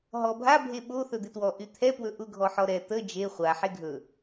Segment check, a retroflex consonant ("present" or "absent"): absent